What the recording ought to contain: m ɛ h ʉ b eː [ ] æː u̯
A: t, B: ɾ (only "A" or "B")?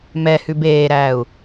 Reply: B